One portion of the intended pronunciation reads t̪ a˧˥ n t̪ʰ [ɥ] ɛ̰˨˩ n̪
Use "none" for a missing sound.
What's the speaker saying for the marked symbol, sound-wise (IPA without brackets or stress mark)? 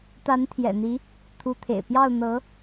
j